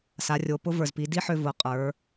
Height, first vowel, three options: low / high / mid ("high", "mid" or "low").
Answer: low